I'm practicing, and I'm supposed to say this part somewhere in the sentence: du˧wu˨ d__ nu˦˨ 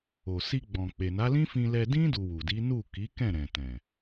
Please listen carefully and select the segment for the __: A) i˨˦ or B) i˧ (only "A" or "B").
A